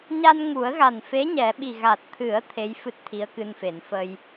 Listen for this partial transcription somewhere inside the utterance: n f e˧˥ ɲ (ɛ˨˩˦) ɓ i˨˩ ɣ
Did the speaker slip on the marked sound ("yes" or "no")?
no